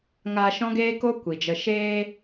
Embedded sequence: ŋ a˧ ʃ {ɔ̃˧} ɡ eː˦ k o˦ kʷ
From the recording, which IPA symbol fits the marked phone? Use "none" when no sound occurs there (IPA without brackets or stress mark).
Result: ɔ̃˦